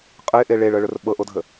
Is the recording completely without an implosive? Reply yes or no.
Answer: no